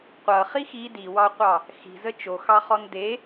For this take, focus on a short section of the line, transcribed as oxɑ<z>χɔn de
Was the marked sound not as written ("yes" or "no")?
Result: yes